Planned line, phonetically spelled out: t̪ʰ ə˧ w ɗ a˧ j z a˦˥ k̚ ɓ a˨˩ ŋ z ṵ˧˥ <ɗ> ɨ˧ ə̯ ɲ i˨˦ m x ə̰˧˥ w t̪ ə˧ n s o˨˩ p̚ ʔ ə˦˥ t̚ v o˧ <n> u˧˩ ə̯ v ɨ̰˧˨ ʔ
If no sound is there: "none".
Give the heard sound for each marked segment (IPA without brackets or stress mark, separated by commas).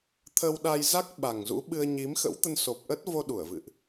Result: ɓ, ɗ